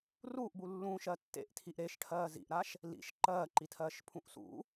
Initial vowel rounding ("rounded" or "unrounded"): rounded